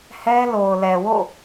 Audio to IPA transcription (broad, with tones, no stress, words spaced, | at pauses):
hɛ˦lo˨ʊ̯lɛ˨wo̰˦˨